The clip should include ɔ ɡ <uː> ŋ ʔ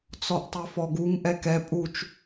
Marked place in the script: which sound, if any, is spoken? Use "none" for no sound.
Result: u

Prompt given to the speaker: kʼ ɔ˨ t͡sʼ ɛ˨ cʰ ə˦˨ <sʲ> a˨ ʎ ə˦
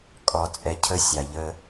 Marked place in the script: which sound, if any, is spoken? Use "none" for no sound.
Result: sʲ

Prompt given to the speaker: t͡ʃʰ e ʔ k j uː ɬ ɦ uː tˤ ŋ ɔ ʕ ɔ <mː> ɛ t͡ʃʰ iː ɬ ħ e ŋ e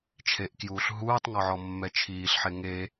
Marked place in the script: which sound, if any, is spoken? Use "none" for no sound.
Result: mː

